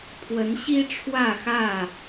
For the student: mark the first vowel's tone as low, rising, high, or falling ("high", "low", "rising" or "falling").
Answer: rising